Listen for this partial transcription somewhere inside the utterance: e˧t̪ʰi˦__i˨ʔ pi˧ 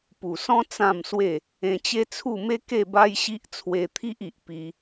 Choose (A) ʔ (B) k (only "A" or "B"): A